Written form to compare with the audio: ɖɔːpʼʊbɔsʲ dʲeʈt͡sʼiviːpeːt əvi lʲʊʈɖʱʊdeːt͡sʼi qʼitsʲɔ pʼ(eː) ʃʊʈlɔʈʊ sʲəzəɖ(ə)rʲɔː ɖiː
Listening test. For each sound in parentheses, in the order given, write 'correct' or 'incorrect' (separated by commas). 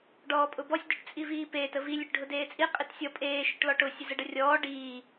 correct, correct